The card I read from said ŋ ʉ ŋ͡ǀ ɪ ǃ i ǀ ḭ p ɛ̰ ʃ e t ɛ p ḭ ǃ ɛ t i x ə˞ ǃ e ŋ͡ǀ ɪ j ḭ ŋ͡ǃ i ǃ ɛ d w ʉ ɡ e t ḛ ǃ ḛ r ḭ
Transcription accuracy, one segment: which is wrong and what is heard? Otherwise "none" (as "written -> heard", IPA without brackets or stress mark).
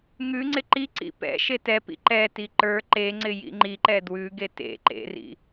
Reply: x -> ǃ